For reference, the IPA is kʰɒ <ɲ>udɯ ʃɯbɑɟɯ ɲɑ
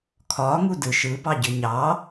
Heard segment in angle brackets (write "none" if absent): ŋ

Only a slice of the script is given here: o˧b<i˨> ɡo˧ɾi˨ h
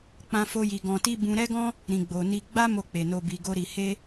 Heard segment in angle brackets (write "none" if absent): i˨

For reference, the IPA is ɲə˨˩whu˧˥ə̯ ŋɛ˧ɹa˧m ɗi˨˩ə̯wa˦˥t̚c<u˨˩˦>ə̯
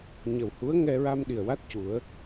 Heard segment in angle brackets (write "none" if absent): u˨˩˦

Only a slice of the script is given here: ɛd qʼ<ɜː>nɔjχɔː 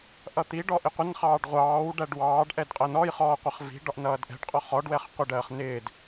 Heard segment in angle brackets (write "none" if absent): ɜ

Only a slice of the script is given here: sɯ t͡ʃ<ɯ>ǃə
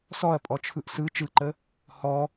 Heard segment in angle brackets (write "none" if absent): ɯ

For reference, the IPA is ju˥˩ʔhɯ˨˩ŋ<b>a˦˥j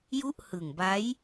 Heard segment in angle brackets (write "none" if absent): b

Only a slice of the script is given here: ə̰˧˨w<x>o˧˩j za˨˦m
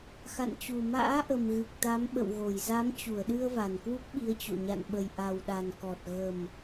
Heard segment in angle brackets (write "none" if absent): ɣ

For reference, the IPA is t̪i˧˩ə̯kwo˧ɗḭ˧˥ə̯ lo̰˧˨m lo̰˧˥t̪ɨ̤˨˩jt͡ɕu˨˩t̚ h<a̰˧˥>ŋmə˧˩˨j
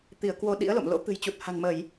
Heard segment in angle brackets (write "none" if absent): a̤˨˩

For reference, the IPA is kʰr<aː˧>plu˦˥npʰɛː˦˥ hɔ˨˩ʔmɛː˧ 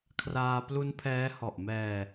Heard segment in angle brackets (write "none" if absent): aː˧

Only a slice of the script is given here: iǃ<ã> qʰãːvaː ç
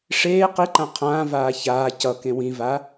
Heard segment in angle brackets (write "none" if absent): ã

